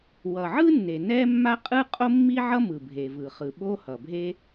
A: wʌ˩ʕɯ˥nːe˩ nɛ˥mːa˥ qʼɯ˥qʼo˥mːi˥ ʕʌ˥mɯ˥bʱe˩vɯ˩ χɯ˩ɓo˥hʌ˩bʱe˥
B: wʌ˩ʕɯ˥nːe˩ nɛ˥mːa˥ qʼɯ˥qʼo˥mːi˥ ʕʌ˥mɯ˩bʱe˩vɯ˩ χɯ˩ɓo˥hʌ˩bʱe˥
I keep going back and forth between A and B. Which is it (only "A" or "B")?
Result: B